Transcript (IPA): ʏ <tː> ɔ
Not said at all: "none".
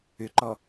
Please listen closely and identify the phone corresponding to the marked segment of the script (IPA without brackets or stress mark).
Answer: ǃ